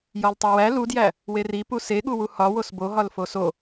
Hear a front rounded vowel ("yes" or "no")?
no